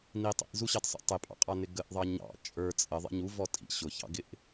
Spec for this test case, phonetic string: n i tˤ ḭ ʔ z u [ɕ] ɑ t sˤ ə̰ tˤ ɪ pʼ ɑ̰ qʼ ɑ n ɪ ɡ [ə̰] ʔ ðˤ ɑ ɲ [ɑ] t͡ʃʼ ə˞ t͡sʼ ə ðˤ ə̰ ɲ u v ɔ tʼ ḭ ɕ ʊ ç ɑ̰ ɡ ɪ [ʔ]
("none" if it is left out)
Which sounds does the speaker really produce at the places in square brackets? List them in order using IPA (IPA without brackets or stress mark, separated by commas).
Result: ɕ, ə, ɑ̰, ʔ